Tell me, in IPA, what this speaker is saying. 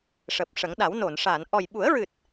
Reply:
ʂəː˨˩p̚ʂə˨˩˦ŋɗa˨˩˦w no˨˩˨nʂa˨˩˨n ʔɔ˨˩jɓu˨˩˦ə̯ɹɨ˨˩t̚

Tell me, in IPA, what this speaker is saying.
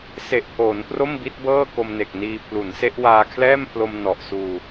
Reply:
se˨˩ʔpʰoː˩˦n pro˥˩mbi˦˥t̚bɤː˥˩ko˧m ne˨˩k̚niː˧ pʰlu˩˦nse˦˥ʔ waː˧kʰlɛː˥˩mpʰlo˧m nɔ˨˩ʔsuː˧

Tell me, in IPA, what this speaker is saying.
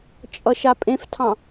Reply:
t͡ʃʼʌʃapʼẽftʰɑ̃

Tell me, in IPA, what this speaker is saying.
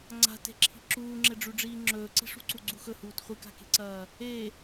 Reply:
ŋ͡ǀa̤te̤ǁʰi̤ ǁuːŋ͡ǁeɖ͡ʐʉɖ͡ʐiː ŋ͡ǁɵːǀi̤ʂṳǀu ɡ͡ǀuxɵhuːt χʷɨka̤ke̤ǀɐː | e

